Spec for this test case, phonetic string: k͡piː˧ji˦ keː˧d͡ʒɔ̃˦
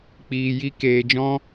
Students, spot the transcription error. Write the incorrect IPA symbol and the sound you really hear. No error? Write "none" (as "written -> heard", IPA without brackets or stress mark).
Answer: none